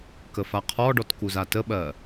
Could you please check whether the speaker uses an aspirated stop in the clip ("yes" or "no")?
yes